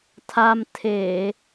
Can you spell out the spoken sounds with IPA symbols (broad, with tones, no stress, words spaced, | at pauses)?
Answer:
t̪ʰa˧mt̪ʰe˧˩˨